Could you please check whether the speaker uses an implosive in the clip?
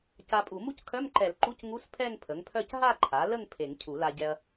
no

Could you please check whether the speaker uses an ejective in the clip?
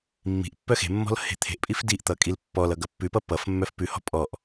yes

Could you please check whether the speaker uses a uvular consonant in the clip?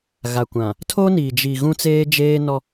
no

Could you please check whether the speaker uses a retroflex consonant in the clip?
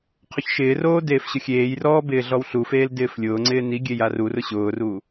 no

